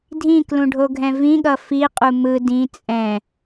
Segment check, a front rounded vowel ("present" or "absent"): absent